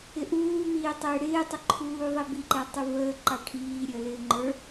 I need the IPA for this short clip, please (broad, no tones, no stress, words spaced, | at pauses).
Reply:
ɪʔuː miːtˤɪːɽɪː tˤɪǃʰuːðˤibi ǃɛtˤuvəː ǃɑʈʰiː ɾʲəːlɪːŋ͡ǃə˞